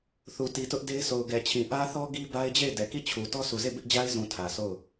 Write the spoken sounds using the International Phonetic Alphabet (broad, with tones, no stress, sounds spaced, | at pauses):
θ u˨ t i˨ t ʊ˦ ʔ d e˦ ɪ̯ s o˨ ʊ̯ ɡ ɛ˨ t͡ɕʰ ĩ˨ ʔ ä˦ θ ɔ˦ ɡ i˦ b a˦ ɪ̯ d͡ʑ e˦˨ ɪ̯ d ɛ˨ k i˦˨ t͡ɕʰ u˨ t ɔ˦ sʰ u˨ z e˦˨ b ɪ˦ ʔ d͡ʑ a˦ ɪ̯ z ũ˨ tʰ ä˨ s o˦˨ ʊ̯